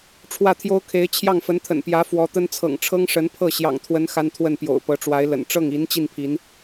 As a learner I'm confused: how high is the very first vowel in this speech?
low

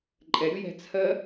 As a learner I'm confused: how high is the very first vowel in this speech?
mid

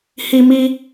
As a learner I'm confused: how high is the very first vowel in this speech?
high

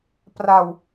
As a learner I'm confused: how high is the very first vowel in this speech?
low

